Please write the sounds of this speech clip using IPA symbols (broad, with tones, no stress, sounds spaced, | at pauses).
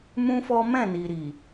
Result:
m ũ˦ f ɔ˦ m ɛ̃˦˨ n i˨ ɾ i˨